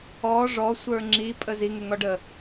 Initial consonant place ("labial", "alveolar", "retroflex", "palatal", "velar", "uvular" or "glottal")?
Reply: retroflex